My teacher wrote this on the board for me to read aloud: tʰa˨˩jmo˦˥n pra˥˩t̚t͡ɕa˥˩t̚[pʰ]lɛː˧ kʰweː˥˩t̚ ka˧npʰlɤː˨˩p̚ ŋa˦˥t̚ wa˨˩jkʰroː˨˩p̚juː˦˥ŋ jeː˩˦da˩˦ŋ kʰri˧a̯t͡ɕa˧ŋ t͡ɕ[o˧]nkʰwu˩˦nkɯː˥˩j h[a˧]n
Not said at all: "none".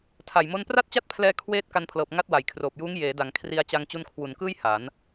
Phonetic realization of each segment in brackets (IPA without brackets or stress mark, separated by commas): pʰ, u˧, a˩˦